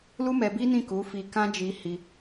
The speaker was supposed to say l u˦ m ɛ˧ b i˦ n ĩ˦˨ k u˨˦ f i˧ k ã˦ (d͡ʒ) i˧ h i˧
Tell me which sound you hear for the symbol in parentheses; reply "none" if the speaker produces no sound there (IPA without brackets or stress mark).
d͡ʒ